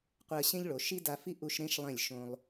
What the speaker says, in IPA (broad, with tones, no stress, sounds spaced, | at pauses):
qʷ ɛ˧ ə̯ ɕ ẽ˥ ʎ ɭ o˩˧ ʃ i˥ d a˧ f i˥ ʔ u˧ ʃ ɾ ẽ˥ ʃ lˠ ẽ˧˩ lʲ ʃ õ˧ lˠ